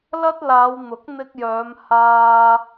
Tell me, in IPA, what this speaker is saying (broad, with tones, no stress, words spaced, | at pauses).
lɐ˥t̚ laː˨˧w n̪ʊ˨˥k̚n̪ɪ˧k̚jœː˨˧m haː˧